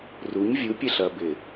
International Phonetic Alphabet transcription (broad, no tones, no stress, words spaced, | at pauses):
ruɲ vʲupʲɛɬɐ bɪ